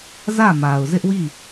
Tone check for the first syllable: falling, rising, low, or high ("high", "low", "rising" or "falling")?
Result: falling